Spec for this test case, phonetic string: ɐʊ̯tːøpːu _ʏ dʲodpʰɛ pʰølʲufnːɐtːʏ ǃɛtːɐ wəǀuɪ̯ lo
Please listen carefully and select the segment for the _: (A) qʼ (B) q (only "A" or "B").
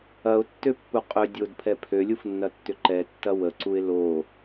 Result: A